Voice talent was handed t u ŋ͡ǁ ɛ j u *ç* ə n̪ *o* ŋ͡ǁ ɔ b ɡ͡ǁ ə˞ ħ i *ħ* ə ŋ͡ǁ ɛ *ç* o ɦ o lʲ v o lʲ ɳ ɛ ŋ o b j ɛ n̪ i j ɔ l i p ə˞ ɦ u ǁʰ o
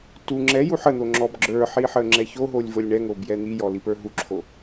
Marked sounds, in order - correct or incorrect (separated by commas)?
incorrect, correct, correct, correct